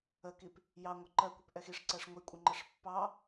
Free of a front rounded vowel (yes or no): yes